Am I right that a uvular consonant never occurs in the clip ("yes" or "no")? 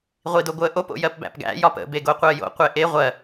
no